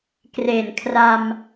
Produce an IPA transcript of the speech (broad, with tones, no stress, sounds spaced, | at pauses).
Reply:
k r e˨˩ n kʰ r a˧ m